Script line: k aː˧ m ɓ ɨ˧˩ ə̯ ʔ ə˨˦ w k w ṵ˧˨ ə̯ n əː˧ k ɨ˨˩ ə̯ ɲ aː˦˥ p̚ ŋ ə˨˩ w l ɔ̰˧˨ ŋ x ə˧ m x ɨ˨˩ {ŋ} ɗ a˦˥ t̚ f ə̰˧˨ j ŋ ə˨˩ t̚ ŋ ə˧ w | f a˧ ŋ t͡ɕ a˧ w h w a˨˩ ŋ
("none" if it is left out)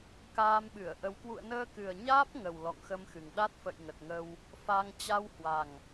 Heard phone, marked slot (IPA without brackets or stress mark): ŋ